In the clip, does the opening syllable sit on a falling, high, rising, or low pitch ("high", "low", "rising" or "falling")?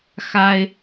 high